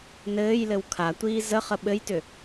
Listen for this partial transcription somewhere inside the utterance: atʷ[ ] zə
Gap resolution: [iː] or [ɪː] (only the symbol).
iː